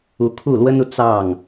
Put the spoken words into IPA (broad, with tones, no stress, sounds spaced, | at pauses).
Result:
u˧˥ kʰ u˥˩ l w ə˥ n u˨ t͡s ɑ˥˩ ŋ